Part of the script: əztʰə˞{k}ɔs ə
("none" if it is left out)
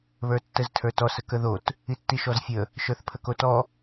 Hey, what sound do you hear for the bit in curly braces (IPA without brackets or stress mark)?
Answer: t